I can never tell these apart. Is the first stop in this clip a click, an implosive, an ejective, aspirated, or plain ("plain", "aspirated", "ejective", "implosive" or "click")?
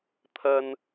aspirated